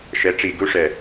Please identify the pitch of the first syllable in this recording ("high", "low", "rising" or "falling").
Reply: rising